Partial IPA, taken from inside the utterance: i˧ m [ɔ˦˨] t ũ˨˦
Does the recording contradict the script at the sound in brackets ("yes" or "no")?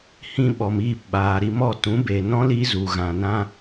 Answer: no